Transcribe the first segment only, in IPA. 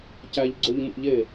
c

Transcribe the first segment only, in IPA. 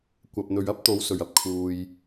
kʷ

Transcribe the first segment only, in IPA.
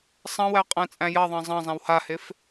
sˤ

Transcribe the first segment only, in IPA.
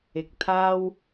ɪ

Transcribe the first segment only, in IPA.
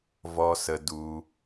v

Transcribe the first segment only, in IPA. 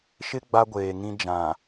ʃ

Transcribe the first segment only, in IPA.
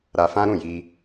ɾ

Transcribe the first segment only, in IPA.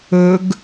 ɵ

